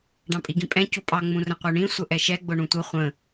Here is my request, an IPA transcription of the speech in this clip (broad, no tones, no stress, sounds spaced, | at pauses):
ɖ ɑ̃ pʼ i ɡ ĩ pʼ ɛ̃ c u pʼ ɑ ŋ͡m ũ r ə̃ qʷ ə˞ ɳ ĩ sʷ ə ʔ ɛ ʃ ɛ ɡ͡b ʊ ɳ ũ tʷ ʌ χʷ ə̃